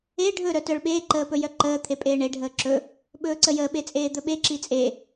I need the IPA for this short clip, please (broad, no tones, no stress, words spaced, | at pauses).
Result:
e ɖʱɵ ɾœtœɭɓeː ǃəːpɵjœǃəː t̪ʰepʼeːɳe ɖʱəːǁɵ | ɓɵːǀəjəː ɓet͡sʼeːd̪ɵɓe ǁit͡sʼe